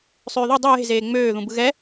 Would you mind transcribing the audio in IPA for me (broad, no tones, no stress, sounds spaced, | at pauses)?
sˤ øː ð u dˤ ɯ j e̤ z eː ŋ͡m øː ð ũ b ɯ ɣ ɛ